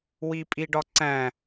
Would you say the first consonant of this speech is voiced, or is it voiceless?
voiced